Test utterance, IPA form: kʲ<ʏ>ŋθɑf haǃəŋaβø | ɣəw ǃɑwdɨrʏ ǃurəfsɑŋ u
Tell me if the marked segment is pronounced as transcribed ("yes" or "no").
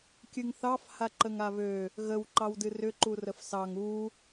no